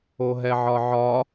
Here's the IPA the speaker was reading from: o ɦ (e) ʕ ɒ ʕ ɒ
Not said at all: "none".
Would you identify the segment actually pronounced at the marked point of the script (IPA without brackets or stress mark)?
ɛ